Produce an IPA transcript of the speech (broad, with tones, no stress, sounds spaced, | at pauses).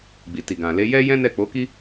ɡ͡b i˨ t i˨ ɡ ã˨ l e˨˦ j ɛ˦ j ɛ̃˦ n ɛ˦˨ k͡p o˨˦ k i˦